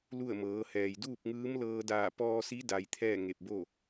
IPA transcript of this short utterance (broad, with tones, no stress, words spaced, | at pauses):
lu˥˨ə̯ mɤː˩˧hɛː˩j duː˥˨p̚ŋɯː˧˥mlɤː˧ daː˧˩pɔː˧si˧˥da˩j t̪ʰɛː˥˨ŋe˧˩p̚bo˥˨